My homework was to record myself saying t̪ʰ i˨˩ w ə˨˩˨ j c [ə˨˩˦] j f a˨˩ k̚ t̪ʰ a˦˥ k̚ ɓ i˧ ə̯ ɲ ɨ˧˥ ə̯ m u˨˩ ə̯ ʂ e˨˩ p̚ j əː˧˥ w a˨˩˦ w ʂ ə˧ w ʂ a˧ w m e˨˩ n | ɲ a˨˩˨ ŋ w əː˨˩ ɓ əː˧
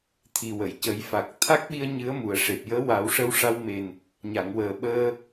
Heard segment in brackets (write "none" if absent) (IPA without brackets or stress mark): ə˨˩˦